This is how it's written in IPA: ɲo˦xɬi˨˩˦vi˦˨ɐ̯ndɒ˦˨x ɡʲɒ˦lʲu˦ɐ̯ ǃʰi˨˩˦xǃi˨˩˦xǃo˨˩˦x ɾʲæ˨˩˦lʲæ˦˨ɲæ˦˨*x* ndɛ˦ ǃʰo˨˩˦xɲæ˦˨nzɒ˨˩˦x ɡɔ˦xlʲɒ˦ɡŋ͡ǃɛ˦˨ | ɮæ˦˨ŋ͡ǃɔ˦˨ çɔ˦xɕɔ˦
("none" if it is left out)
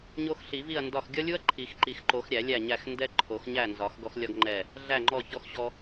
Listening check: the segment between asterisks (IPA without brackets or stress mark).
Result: x